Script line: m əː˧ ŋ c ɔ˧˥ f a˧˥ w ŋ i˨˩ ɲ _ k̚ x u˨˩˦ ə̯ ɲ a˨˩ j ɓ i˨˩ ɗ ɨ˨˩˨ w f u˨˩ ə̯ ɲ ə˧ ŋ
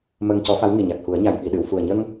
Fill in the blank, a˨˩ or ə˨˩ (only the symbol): a˨˩